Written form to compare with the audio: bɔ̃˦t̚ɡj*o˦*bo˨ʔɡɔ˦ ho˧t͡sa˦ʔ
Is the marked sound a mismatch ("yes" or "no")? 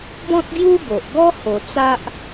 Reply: yes